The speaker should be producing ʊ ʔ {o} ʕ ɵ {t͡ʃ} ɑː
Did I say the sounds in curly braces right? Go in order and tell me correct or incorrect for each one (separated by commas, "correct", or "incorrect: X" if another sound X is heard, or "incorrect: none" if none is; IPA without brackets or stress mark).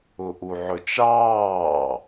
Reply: incorrect: u, correct